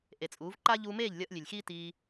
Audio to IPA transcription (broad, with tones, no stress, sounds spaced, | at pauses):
ʔ e˨ t͡sʼ uː˨˦ v ǃ aː˦ ʎ uː˧ m eː˦˨ ʎ lʲ ʌː˧ ʔ lʲ e˨ lʲ x iː˦ t iː˧